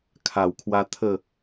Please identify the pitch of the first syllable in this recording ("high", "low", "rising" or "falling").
low